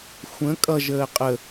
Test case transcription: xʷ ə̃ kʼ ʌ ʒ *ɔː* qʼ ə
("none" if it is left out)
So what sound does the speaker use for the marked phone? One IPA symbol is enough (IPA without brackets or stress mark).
əː